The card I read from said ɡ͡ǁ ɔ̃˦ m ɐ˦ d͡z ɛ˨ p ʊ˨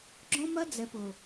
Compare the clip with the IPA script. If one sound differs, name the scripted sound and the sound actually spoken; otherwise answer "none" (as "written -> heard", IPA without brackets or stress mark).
none